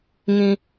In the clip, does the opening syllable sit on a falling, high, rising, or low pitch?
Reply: high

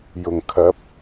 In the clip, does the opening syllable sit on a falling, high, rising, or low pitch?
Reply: low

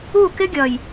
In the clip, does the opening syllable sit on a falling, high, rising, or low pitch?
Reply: falling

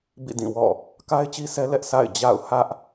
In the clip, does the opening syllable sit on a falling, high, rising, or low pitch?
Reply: falling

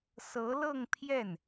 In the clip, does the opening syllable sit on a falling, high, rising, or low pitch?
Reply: rising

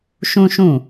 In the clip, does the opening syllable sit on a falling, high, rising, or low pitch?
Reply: high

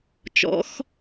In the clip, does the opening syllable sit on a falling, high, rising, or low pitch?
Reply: rising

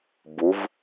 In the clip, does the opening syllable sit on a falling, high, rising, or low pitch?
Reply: rising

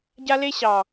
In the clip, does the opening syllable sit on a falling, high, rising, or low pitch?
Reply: high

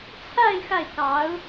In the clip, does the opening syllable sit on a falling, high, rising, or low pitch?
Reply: falling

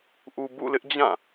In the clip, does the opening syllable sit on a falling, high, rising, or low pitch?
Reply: low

